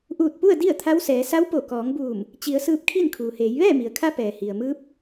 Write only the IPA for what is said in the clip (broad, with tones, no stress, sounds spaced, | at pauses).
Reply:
ʔ uː˧˩ t̚ p u˥˨ ə̯ d i˥˨ ə̯ t̪ʰ a˧˥ w s ɛː˩˧ s a˧˥ w p o˧˩ k ɔː˩˧ ŋ b uː˧˩ m | t͡ɕ i˩˧ ə̯ s ɯː˧ p̚ kʰ i˥˨ n kʰ uː˩ h eː˩˧ j ʋ ɛː˥˨ m i˩ ə̯ kʰ a˧˥ p ɛː˩ h i˩ ə̯ m ɯː˧˥ p̚